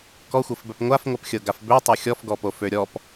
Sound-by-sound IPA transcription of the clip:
kɔxʷɤfbœp ŋʷafŋʷœpxʲɤɡaf bøtˤo xʲɔfɡɔpo føɾʲɔp

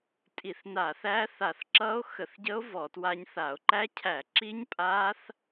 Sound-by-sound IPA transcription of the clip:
tʼi˧˩˧θna˧˩˧θæ˦˥θa˧˩˧θ ǁʌ˦˥o̯xə˧˩˧θɟə˦˥o̯ vɔ˧˩˧twa˦˥ɲθa˧˩˧o̯ ǃæ˦˥cʰæ˧˩˧ǁi˦˥ɲ pʼa˦˥θ

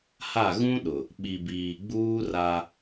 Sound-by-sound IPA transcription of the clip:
ha˦˨ɣũ˦ɗʊ˨ | ɓi˨biː˨ɡ͡buː˦ ra˦

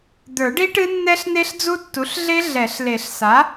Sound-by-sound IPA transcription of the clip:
d̪ə˞˨˩˦ɖi˦˥ ʈɨ˦˥nːɛ˦˥ɬne˦˥ɬ d͡zu˦˥tːu˩˥ɬɮe˦˥ ɮɛ˨˩˦ɬle˨˩˦ɬ sa˩˥

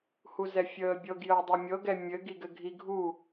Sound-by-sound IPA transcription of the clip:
huzɛfʲəːbʲɤɡ jəːdˤemʲɤɡɛ mʲɘɡi ɡɘɡʱi ɡʱu

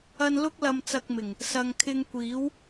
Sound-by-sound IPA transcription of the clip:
ɐ˧nlʊ˥k̚ lɐ˧mt͡sɐ˧k̚mɪ˨˩ŋ | sɐ˨ŋkʰɪ˧ŋkʷiː˨˥w

